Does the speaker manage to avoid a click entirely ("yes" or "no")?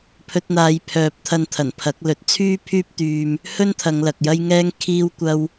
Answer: yes